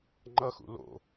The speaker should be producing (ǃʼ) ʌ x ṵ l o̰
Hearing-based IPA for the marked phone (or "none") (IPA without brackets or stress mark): ŋ͡ǃ